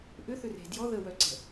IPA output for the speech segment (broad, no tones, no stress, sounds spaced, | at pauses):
ʔ ʏ θ ʏ r e̤ d j ɔ ð ə w œ ǀ ɛ̤